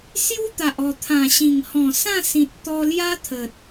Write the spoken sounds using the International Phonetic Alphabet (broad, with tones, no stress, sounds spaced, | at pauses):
s j u˦ t̪ a˨ ʔ ɔ˨˩ t̪ʰ ã˨˩ ɕ ĩ˨˩ ŋ h ɔ̃˨˩ s ã˥˧ s ĩ˨ t̚ t̪ ɔ˧ l j a˦ t̪ʰ ə˨ t̚